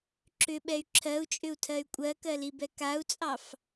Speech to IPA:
ǁ ʏ ɓ ɛ y̯ ǁʰ ɜ u̯ t͡ʃʼ ʏ u̯ tʰ ɜ y̯ kʷʼ ɜ k ɜ l i b ɛ k a u̯ t͡sʼ ɑ f

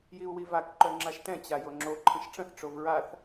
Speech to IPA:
j i u̯ w i v a k ǃ œ ŋ͡ǁ a ʃ t ɛ̃ t͡ɕ a j o ŋ͡ǁ o ǃʰ ə̃ ʃ ʈ͡ʂ ə̃ θ ʈ͡ʂ o v ɹ a θ

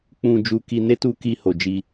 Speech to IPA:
k͡p ũ˧ d͡ʒ u˧ k i˧ n e˦ t u˧ k i˧ h o˨ d͡ʒ i˧

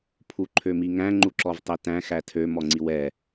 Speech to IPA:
pʰ u ǃʰ ø m i ŋ æ̃ ŋ͡ǃ u ǁ ɔ v tˤ e t æ̃ x æ tʰ ø m ɔ ŋ͡ǀ i w ɛ

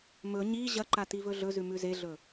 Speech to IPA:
m ɵ ɲ i ʑ ɐ ǃ a t i v ɵ ɮ ɵ z ʉ m ʉ z e ɮ ɵ

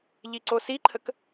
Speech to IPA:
ʎ i ǀ o s i ǃʰ ə k

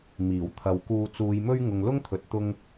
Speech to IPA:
m iː˨˩ w t̪ʰ ɐ˨ w k uː˧ t͡s uː˨˧ j m ɵ˥ ɥ ŋ ʊ˨ ŋ l ʊ˥ ŋ t̪ʰ ɵ˨ t̚ t̪ ʊ˥ ŋ

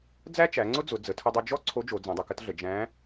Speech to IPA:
d͡z æ˥ t͡ʃ æ˩˧ ŋ͡ǀ ʊ˥ d͡z ʊ˩˧ d͡z ə˩˧ tʰ ə˧ dˤ ʊ˧ d͡ʒ ɔ˥ ǀʰ o˧˥ d͡ʒ o˩˧ d͡z ɛ̃˩˧ dˤ ʊ˩˧ k ə˥ t ɮ ə˩˧ d͡ʒ æ̃˧˥

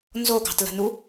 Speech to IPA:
n z o ɡ ɑ̤ t l ə̤ n u

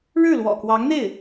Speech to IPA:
ɻ ɻ̩˥˩ l w ɔ̰˨˩ k w ɑ˧˥ ŋ n̪ e˥˩ ɪ̯

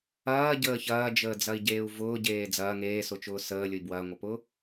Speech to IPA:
ɐː ɟ əː ç ɐː d͡ʒ əː d͡z ɐ i̯ ɟ eː u̯ v ʊː ɟ eː d͡z ɐː ŋ eː s ʊ t͡ʃ ʊː s əː lʲ ʊ i̯ b w ɐː ŋʷ ɐ p ʊː

